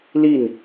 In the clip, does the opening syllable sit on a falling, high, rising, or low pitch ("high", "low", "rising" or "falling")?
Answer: falling